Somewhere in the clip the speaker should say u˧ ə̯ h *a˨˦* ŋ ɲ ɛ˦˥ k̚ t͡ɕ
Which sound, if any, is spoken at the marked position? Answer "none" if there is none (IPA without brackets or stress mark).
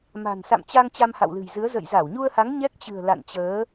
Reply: a˨˦